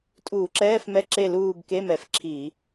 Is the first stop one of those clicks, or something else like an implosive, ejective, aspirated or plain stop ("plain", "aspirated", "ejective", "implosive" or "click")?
ejective